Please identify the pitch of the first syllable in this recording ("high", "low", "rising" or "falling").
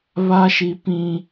high